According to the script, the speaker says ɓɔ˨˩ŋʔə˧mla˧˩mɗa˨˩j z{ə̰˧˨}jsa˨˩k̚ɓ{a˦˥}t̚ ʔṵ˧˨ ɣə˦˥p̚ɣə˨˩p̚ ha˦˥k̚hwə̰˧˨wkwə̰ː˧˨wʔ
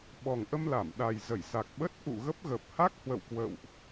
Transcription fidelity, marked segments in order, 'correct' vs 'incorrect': incorrect: ə˧˩, incorrect: ə˦˥

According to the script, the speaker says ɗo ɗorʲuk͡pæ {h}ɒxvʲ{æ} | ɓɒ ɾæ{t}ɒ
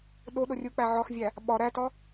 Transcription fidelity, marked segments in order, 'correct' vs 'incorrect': incorrect: ʕ, correct, correct

